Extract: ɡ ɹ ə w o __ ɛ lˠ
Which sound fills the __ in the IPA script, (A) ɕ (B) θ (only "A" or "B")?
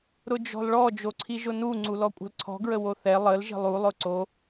B